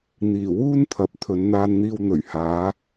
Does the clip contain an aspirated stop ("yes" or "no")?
yes